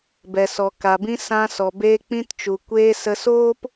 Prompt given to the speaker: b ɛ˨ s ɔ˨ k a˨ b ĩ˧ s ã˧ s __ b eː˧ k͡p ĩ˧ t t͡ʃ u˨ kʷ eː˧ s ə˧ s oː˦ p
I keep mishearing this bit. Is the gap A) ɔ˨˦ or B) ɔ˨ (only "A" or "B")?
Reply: B